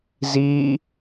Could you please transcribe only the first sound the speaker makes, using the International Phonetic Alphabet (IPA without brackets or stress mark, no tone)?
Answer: z